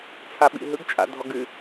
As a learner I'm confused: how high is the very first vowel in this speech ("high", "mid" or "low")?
low